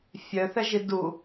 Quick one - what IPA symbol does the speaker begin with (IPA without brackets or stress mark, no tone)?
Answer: fʲ